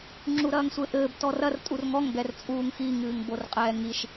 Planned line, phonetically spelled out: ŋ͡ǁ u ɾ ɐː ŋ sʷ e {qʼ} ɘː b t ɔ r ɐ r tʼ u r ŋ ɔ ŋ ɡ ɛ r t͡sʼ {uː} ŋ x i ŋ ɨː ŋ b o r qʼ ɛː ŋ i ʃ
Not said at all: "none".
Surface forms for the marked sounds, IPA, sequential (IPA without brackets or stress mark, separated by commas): ʔ, uː